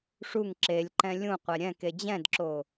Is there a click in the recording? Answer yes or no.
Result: yes